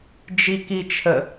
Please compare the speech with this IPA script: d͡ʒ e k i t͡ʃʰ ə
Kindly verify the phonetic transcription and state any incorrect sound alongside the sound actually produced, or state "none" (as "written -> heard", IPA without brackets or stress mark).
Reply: e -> i